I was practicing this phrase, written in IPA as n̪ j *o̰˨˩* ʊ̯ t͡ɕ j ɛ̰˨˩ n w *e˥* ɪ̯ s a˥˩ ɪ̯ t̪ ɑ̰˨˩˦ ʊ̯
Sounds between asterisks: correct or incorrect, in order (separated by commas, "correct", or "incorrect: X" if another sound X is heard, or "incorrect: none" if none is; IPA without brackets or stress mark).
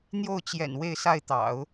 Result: incorrect: o˥˩, incorrect: e˥˧